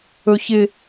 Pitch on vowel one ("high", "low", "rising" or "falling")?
low